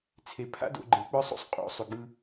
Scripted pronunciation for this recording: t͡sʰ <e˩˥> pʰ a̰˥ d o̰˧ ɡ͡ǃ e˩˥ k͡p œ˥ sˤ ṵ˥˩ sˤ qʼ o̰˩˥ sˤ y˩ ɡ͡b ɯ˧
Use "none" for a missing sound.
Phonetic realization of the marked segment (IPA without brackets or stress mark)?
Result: e˩˥